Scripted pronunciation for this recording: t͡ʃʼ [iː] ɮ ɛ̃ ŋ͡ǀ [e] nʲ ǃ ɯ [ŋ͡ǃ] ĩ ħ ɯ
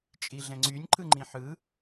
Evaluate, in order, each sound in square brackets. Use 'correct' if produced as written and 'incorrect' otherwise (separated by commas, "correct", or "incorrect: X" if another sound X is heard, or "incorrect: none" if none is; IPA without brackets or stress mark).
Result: incorrect: i, incorrect: y, correct